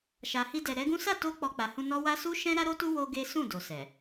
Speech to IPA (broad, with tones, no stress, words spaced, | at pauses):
ʃa˨hi˧dɛ˨ ɾɛ˨˦ɡũ˦ sa˦˨to˧ k͡pɔ˧ k͡pa˨hũ˧nɔ˦wa˦ su˦ʃɛ̃˦ ɾa˦ɾo˦tu˦ wo˦ɡe˦ sũ˦˨do˨ sɛ˨